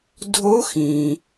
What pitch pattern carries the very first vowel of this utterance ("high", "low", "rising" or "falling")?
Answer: rising